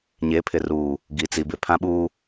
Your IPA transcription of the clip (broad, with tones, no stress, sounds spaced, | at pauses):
ɲ e˨˦ pʰ ɪ˨ r uː˨ | ɡ i˨ t͡s i˨ b ɪ˨ pʰ ã˦ ɓ uː˦